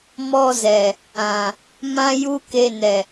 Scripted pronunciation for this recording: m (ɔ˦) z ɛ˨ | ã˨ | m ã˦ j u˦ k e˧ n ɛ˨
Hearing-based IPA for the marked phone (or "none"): ɔ˧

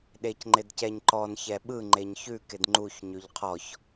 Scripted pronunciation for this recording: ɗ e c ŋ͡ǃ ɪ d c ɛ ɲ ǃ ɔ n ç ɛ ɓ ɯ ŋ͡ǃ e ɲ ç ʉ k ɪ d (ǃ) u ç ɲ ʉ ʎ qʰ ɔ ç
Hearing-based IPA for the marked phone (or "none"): ŋ͡ǃ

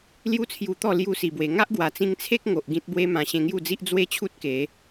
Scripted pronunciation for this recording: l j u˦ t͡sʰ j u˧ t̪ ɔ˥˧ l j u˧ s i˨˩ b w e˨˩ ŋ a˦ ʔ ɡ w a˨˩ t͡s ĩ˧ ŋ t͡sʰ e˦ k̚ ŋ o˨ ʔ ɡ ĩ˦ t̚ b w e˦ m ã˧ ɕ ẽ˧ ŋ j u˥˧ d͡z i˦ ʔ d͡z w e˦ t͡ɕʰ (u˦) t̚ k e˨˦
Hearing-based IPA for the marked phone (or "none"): u˦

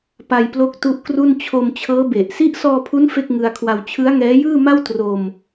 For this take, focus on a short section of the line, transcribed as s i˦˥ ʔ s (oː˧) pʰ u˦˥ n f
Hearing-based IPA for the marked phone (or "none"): ɔː˧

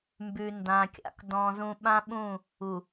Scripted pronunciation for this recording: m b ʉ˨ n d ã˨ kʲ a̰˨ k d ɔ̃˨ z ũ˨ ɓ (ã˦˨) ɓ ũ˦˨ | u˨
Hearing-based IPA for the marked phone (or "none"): ã˦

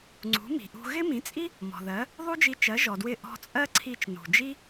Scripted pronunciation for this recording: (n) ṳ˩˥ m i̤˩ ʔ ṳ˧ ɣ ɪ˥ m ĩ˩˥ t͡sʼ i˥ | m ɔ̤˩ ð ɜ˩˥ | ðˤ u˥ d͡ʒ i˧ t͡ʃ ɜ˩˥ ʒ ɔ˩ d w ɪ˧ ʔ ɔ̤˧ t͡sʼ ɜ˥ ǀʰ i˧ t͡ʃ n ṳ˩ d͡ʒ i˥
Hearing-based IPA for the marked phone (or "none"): ŋ͡ǀ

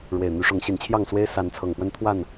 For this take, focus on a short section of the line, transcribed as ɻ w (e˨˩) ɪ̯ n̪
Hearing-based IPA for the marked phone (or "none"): e˨˩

